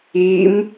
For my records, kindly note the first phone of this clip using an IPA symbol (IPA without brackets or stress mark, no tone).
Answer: i